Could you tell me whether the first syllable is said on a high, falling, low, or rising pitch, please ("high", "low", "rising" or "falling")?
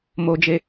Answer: high